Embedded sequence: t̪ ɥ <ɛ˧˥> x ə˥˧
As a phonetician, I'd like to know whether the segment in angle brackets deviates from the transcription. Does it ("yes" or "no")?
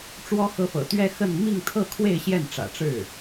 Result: yes